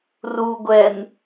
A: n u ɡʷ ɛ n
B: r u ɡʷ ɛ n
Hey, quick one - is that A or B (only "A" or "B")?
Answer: B